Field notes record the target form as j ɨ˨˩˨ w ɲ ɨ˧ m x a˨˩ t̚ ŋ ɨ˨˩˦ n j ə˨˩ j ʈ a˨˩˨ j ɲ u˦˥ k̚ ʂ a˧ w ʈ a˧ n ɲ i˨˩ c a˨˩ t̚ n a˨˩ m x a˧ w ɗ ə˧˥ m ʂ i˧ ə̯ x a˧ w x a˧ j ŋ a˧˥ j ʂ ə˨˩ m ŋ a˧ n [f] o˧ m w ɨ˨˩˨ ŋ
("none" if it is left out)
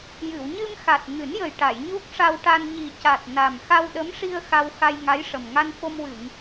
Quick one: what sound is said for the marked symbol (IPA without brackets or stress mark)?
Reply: f